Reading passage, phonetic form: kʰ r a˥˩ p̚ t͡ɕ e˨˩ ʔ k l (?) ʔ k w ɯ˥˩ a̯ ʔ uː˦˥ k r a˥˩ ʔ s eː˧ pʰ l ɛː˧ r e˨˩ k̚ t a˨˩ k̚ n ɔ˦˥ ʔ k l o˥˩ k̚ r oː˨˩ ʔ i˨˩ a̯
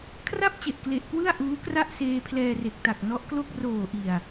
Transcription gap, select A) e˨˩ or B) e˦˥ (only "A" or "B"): A